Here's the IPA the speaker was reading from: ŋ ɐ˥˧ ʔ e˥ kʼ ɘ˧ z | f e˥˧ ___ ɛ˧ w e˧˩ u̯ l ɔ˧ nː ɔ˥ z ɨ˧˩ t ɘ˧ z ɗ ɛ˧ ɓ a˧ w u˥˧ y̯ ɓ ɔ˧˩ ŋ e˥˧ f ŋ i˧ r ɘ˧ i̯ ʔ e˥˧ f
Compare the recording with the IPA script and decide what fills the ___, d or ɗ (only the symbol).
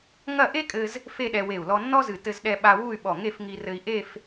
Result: ɗ